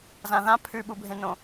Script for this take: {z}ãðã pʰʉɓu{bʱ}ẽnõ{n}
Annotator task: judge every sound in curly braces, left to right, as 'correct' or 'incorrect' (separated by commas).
correct, correct, incorrect